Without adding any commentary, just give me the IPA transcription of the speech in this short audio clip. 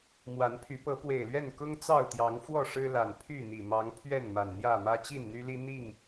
m w a˨˦ n pʰ y˨˦ p ɤ˨˦ p w e˨˩ ɪ̯ l ɥ ɛ˥˨ n k ʊ˦ ŋ t͡s ɑ˥˨ ʊ̯ t̪ j ɑ˨˦ ŋ f w ɔ˥˨ ʂ ɻ̩˦ l a˨˩ n pʰ y˥˨ n̪ i˨˩ m ɑ˨˦ ŋ pʰ ɥ ɛ˥˨ n m a˨˩ n n̪ j ä˥˨ m ä˦ t͡ɕ i˥˨ n n̪ y˦ l i˦ n̪ i˥˨ ŋ

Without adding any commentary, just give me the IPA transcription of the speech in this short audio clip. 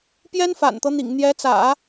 p j ɛ˥ n f a̰˨˩ n t̪ ɤ˦ n̪ ḭ˨˩ ŋ n̪ j ɛ˧˥ t͡s ä̰˨˩˦

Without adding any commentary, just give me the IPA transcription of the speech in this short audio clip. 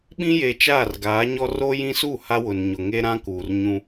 ɓ ĩ˦ j e˨ t͡ʃ aː˦˨ r ɡ aː˨˦ ɲ ɔ˦ r o˦ j ĩ˦ s u˦˨ h a˦ w ʊ˨ n ɲ ʊ˨ ŋ e˦ ɾ ã˦ k uː˨ r ɲ ũ˦

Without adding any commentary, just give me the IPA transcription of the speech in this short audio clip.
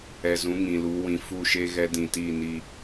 ɛ˨ z ũ˨˦ ŋ ĩ˨ l u˨˦ w ĩ˨ f u˦˨ ʃ e˦ ɣ ɛ˦ d ĩ˨ t i˦˨ n i˦

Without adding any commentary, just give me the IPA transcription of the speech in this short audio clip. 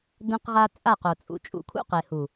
d ɛ̃˦ q ʁ a˦ t͡sʼ a˦˨ q o˨ t͡sʼ ṵ˨ t͡ʃʼ ṵ˨ kʰ ṵ˦ q e˨ h u˨

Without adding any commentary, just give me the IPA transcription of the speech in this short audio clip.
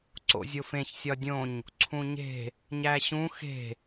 ǀ o̰ zʲ o f ẽ ç sʲ ɒ dʲ õ ɲ | ǀʰ ũ ɲ e̤ | ɲ æ ɕ ũ x e̤

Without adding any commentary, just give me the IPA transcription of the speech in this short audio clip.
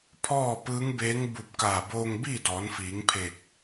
pʰ ɔː˥˨ p ɯː˧˥ ŋ b eː˧˥ ŋ b u˧˩ p̚ k aː˧˩ b oː˧ ŋ b iː˥˨ d ɔː˩˧ n f iː˩˧ ŋ pʰ e˧˩ k̚

